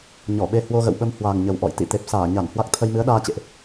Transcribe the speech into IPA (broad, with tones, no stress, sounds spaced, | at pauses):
ɲ ɔ˧˩ ɓ e˧ h w o˧ ɣ ə̰˧˨ w ɓ ə˧ m h w a˨˩ ŋ ɲ ə˨˩ w ʔ ɔ̰˧˨ j t̪ ḭ˧˨ t̪ e˨˩ p̚ s aː˧˩ ɲ a˧˩ n h w a˦˥ k̚ t̪ʰ ə˧ j m ɨ˨˦ ə̯ ɗ aː˧ t͡ɕ ḛ˧˨ ʔ